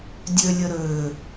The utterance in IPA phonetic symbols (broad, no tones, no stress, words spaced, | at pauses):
dʲølʲə ɾøː